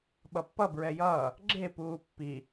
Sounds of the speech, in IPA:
ɓ ʌ pː ʌ b ɹ ɛ j ʌː | ɡ͡ǁ e p uː pː i

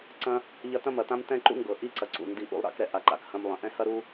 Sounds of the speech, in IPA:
ǀ ɐ̃˦ | ʎ ɐ˧ t ɐ̃˦ m ɐ˨ t ã˦ m t ɛ̃˦ ǃ ṵ˦ ŋ ɡ ɤ˨ ʔ i˦ ǀ ɐ˨ ǀ ṵ˨ n d i˧ ʔ ṵ˧ lˠ ɾ a̰˧ k ɾ ɛ˨ ʔ a˧ ǃ a̰˧ k h ɐ̃˦ m lˠ ɐ̃˨ ʔ ɛ̃˦ h ɐ˦ ɾ u˦

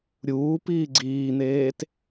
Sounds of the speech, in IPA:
ɾʲ uː p iː ɡ͡ǀ iː n̪ eː t

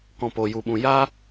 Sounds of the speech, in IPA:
k ɔ̃˨ p o˨ j u˨ ɓ ũ˨ j a˦

